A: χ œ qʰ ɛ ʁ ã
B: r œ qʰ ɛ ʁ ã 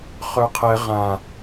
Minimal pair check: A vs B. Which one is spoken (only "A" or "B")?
A